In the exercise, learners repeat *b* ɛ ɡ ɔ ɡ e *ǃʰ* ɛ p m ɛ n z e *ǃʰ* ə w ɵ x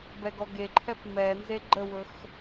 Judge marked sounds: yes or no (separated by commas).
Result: yes, yes, no